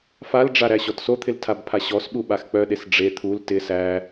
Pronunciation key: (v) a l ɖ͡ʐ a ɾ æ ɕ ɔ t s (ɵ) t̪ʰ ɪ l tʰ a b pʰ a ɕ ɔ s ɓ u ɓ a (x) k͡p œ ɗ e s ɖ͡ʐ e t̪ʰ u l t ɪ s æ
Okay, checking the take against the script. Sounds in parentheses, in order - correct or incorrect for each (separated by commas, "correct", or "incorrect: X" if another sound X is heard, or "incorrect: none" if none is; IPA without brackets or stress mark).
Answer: incorrect: f, incorrect: o, correct